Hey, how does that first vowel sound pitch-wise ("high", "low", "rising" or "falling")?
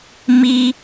high